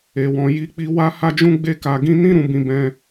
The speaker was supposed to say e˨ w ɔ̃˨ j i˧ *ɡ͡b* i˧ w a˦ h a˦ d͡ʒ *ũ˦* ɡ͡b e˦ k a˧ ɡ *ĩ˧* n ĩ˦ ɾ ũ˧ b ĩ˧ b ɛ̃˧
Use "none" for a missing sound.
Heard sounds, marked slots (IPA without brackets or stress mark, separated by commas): k͡p, ũ˦, ĩ˦